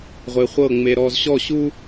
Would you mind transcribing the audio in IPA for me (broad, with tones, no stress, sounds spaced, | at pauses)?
ʁʷ e˧ χʷ ɤ˥˨ ŋ͡m e˧ ɾ ɔ˧ z ɕ ɔ˥˨ ɕ u˥